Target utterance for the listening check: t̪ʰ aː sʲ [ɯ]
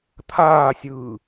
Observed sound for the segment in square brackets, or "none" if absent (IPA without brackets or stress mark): ɯː